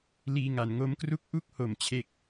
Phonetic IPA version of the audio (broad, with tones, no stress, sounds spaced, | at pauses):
l iː˧ ŋ a˩˦ n ŋ o˦˥ m k r u˥˩ k̚ ʔ u˥˩ k̚ h o˨˩ m t͡ɕʰ e˥˩ k̚